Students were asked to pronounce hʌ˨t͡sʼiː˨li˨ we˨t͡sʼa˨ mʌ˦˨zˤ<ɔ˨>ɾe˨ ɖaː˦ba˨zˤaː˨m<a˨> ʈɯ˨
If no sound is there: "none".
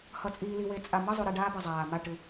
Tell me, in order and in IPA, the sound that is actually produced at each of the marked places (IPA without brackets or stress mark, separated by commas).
o˨, a˦˨